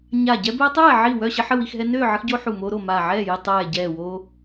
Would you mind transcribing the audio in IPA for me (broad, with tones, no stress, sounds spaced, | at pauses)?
ɲ a˧˩ ɟ ɛ˦ b ɛː˦ tˤ ɛː˥˨ ʕ i˧˩ w œ˥˨ ɕ ə˦ ħ ə˥˨ w i˥˨ x ɦ ɛ˦ n øː˥˨ ʕ ə˦ x ɟ oː˦ ħ u˧˩ m oː˦ ɾ o˧˩ m aː˧˩ ʕ ɛː˥˨ j i˥˨ tˤ ɛː˧˩ ɟ ɛː˧˩ w o˦